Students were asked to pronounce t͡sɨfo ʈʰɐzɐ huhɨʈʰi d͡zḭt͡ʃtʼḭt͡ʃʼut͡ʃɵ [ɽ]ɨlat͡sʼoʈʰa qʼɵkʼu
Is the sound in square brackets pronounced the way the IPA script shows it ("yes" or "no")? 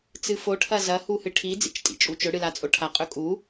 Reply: yes